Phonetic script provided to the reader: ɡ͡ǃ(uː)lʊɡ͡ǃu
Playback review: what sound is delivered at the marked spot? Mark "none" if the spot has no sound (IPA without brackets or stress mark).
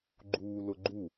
uː